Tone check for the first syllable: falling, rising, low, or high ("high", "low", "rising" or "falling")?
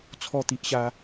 falling